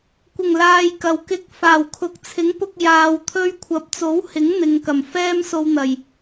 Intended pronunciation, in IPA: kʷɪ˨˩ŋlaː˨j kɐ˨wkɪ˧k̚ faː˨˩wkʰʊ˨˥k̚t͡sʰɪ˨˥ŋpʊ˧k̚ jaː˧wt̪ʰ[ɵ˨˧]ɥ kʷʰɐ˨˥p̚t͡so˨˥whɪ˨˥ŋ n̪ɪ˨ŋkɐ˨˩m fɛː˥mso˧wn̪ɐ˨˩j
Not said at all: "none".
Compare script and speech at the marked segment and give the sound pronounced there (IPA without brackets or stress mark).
ɵ˥